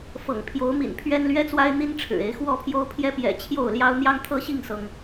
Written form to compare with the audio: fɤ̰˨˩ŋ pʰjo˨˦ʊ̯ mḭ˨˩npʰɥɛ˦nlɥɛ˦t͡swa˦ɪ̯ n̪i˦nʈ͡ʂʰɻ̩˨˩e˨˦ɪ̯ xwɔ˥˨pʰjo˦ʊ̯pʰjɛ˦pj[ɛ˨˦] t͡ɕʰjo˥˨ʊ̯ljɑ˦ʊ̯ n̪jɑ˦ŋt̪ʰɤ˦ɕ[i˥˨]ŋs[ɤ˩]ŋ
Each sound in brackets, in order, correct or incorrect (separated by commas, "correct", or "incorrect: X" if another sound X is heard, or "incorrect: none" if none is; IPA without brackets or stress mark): incorrect: ɛ̰˨˩, correct, correct